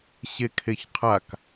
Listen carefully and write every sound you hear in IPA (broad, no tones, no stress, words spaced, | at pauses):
ɕekʰeçqʰak